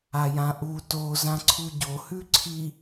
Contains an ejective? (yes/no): no